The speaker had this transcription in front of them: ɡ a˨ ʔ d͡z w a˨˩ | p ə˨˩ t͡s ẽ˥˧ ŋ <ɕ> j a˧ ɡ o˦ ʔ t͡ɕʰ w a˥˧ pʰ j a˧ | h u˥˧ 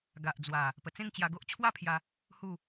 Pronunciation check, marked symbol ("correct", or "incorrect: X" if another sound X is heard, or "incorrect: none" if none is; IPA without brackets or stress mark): incorrect: t͡ɕ